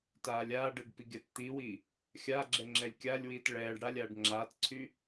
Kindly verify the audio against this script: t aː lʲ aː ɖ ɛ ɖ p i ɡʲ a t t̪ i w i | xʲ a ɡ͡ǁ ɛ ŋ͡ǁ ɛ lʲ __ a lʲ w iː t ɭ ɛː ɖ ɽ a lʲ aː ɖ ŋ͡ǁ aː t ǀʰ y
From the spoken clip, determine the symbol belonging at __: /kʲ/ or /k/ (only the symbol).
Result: kʲ